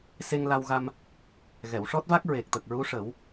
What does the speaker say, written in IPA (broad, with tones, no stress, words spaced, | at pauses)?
se˧ŋla˧wɣa˧m | ɣɛ˨˩˨wʂɔ˦˥t̚va˦˥k̚ ɹe˨˩k̚t̪ə˨˩k̚ɹu˧˥ ʂə˨˩˦w